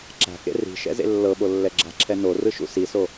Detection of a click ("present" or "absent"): present